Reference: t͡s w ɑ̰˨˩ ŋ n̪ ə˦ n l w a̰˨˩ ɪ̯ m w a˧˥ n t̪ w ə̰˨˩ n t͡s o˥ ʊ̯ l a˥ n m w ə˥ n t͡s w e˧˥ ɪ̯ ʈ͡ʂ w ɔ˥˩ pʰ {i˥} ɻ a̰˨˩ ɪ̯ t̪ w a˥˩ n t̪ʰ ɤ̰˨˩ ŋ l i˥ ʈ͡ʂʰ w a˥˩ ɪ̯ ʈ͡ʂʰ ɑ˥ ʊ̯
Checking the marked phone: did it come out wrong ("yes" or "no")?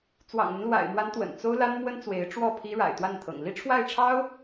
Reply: no